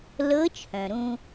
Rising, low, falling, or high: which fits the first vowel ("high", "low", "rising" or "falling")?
rising